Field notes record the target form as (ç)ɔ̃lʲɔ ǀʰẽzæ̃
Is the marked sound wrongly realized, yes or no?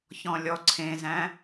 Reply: no